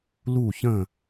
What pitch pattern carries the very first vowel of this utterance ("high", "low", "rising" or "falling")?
falling